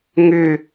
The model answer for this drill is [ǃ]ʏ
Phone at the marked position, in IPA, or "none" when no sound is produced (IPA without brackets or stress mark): ŋ